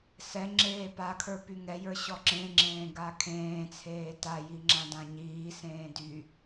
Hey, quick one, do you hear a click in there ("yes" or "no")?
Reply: yes